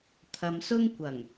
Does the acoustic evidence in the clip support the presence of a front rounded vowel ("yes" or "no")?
no